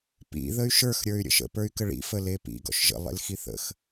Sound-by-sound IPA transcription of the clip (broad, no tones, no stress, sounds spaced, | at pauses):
p ḭ ð ə y̯ ʃ ə˞ x ɾʲ ə˞ y̯ ɾʲ ə̰ ʃ ə̰ p ə˞ y̯ k ə ɭ ḭ f ə l e p ḭ ɡ ɔ̰ ʃ ʒ ə̰ lˠ ḛ l x i θ ə̰ x